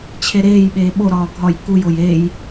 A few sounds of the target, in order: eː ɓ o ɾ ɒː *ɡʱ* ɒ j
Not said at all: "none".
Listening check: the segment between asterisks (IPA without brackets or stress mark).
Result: ɡʱ